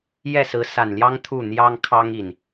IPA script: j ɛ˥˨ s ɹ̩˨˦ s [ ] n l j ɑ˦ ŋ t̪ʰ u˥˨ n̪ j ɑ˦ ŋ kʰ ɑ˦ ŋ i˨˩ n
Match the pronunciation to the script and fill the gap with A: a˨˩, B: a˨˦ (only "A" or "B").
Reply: A